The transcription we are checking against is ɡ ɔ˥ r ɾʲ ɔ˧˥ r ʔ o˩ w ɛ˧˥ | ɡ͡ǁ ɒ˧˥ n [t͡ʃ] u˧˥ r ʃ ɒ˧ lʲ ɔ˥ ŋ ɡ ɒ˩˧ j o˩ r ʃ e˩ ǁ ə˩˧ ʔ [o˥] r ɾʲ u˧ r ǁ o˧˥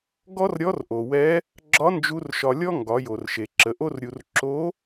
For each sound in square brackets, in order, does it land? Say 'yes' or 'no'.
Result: no, yes

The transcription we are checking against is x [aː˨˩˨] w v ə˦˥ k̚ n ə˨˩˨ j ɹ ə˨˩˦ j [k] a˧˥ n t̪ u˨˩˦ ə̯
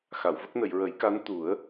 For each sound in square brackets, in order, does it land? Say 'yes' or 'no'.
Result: no, yes

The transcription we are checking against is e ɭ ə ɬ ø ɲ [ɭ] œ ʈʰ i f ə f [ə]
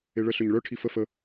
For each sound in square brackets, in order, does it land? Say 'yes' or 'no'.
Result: yes, yes

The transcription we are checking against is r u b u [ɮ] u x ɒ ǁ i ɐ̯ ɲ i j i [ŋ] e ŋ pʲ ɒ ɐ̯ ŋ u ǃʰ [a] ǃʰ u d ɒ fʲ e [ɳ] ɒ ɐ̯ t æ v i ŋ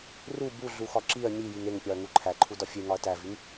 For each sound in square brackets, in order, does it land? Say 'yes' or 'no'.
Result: yes, yes, no, no

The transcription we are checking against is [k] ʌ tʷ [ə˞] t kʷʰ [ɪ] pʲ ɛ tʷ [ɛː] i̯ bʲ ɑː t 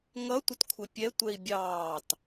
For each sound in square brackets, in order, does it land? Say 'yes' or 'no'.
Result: no, no, yes, no

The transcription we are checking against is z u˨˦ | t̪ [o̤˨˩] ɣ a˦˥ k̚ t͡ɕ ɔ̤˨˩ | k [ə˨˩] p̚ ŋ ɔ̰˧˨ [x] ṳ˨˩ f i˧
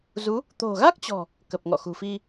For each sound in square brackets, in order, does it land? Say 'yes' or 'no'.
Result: yes, yes, yes

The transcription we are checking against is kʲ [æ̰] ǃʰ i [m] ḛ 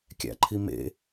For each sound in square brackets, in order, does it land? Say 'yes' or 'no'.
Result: yes, yes

